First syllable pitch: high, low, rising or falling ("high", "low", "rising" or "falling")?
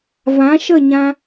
rising